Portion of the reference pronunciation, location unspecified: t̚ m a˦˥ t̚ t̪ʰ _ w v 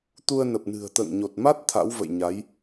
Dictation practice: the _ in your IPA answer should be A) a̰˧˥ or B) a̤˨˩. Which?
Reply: A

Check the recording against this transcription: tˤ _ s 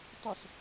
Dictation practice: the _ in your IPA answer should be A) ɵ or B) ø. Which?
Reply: A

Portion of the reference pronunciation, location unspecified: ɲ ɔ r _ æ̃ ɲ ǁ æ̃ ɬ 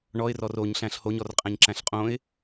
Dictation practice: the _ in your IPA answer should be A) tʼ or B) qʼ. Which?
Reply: B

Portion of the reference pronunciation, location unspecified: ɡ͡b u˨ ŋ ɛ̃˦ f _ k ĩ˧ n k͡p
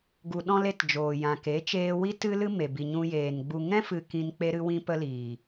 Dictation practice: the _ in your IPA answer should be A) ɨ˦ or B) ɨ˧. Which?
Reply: B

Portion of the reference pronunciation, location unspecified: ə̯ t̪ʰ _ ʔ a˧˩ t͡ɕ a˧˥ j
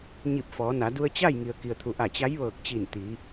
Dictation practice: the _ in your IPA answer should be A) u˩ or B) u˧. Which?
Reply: A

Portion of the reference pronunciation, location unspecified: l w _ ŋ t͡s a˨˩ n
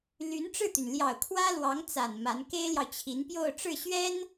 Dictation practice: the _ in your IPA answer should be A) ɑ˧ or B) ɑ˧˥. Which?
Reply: B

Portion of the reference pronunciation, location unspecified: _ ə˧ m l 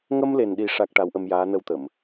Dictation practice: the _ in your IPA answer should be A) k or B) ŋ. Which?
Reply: B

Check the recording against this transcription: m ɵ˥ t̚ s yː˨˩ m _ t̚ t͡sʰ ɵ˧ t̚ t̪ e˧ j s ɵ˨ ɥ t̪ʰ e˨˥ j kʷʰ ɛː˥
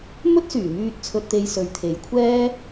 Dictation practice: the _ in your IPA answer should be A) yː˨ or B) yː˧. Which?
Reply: B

